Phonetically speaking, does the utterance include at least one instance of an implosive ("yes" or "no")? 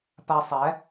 no